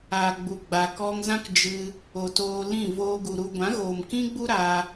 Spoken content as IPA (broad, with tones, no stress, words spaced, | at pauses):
a˨ ɡ͡bu˨ ɡ͡ba˨kɔ˧ŋzã˦k d͡ʒɨ˧ | o˨toː˧lĩ˦˨ voː˧ɡu˨ɾu˧ ɡʷã˨˦ɣoː˨mkĩ˦ɡ͡bu˦ ɾa˧